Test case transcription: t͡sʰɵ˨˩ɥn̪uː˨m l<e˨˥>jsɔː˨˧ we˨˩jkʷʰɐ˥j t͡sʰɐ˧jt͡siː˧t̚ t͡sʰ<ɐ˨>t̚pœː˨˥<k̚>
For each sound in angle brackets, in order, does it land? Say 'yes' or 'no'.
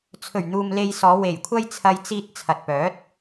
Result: no, yes, no

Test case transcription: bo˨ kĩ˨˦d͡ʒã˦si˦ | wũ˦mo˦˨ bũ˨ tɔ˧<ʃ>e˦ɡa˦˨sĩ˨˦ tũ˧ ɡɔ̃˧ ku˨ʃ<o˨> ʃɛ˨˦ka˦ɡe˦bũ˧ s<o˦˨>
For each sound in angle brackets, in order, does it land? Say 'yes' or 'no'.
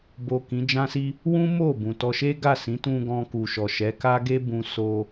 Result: yes, no, no

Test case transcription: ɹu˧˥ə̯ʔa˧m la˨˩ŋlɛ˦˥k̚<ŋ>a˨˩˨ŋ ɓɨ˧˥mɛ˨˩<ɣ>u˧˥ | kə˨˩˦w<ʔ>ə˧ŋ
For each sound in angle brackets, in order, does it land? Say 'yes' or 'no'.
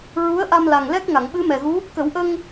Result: yes, yes, yes

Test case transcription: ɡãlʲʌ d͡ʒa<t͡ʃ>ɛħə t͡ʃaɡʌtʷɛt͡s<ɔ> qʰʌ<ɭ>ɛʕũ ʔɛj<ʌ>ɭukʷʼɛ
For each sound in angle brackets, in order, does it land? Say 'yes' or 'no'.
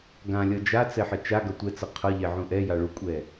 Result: no, no, no, no

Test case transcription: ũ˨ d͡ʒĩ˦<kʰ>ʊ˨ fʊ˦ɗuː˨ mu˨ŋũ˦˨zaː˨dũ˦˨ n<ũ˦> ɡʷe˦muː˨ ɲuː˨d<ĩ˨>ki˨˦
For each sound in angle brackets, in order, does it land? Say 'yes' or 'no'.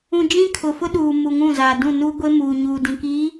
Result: yes, no, yes

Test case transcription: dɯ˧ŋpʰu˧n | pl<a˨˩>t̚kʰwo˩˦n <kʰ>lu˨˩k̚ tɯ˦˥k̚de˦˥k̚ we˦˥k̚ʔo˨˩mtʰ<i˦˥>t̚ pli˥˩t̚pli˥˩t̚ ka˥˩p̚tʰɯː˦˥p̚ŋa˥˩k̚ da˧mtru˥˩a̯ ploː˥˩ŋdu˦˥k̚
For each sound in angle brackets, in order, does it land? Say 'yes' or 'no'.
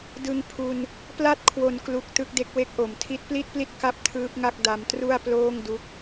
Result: no, no, yes

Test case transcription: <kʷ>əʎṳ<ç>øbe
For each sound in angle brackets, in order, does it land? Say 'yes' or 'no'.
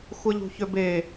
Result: no, yes

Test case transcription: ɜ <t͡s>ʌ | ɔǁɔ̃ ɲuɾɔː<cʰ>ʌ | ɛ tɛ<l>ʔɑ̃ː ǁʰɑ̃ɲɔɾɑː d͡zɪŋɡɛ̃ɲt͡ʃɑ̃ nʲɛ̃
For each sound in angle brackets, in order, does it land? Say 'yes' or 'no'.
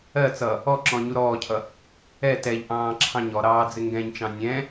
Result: yes, yes, no

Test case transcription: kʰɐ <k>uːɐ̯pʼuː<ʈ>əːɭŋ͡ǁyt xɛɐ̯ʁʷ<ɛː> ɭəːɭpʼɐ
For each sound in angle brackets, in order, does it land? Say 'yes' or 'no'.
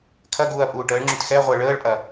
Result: no, yes, no

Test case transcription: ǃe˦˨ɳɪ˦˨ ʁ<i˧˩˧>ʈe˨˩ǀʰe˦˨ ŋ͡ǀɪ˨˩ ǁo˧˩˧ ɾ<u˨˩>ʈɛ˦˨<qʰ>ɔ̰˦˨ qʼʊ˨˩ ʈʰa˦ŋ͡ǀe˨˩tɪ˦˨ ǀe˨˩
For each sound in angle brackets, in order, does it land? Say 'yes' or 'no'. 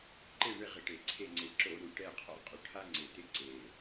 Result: no, yes, yes

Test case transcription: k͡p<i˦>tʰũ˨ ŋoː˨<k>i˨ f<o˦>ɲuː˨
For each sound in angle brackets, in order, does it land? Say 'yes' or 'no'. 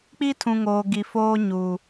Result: yes, no, no

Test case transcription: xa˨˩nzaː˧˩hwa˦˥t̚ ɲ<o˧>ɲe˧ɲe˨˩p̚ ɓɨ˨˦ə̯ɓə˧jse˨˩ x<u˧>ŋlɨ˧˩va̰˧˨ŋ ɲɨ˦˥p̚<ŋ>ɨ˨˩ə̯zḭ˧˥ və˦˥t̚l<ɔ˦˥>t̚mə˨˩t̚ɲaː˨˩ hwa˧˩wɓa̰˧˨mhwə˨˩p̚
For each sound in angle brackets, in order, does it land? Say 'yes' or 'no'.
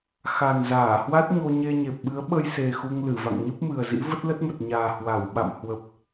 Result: yes, yes, no, no

